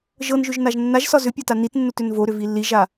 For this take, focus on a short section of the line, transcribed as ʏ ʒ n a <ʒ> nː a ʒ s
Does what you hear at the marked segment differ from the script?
no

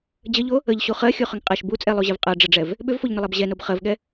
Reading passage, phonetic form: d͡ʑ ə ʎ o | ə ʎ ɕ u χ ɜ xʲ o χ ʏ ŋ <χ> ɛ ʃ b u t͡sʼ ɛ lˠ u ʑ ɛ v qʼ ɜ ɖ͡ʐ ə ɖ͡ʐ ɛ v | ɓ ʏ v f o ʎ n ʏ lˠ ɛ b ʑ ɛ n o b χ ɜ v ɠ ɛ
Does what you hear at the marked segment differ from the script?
yes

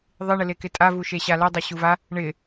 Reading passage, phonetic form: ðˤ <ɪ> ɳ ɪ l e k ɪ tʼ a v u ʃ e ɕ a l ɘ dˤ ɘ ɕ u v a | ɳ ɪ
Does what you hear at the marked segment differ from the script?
no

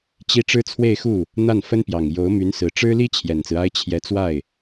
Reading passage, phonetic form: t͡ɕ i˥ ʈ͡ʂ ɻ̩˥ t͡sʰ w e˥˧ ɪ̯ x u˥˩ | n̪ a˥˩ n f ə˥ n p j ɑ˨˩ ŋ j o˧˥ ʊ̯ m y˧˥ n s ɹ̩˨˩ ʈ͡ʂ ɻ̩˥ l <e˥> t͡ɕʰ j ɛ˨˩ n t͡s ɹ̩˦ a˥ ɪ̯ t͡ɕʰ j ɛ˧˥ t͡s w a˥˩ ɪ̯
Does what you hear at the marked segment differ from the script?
yes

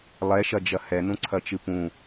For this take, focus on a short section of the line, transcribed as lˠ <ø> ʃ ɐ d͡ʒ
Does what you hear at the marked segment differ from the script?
yes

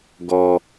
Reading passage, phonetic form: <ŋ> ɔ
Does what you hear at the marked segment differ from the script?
yes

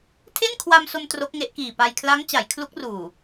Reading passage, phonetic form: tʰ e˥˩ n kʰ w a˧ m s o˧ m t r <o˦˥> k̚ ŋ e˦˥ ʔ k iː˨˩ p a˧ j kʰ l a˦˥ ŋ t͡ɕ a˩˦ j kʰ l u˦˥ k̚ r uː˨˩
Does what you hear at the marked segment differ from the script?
no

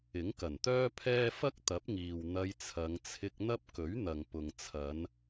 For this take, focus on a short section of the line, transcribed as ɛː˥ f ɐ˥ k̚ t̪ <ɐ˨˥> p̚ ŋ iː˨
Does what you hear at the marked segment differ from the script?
no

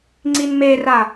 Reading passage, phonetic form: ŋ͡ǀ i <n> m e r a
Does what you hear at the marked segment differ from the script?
no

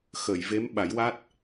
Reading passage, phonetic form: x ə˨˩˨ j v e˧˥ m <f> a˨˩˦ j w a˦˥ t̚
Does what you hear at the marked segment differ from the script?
yes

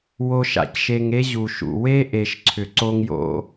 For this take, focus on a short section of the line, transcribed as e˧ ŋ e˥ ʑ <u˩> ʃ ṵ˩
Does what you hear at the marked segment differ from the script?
no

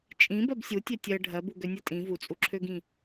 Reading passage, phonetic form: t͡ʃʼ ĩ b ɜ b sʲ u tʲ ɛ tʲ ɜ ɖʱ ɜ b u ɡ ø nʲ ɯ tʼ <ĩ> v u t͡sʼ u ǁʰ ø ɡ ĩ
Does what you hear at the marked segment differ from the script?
no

